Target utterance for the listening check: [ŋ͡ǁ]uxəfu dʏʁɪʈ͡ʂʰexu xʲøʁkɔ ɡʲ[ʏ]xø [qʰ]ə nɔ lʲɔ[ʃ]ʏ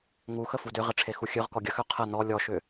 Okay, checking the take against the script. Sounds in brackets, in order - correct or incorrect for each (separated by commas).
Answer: incorrect, incorrect, correct, correct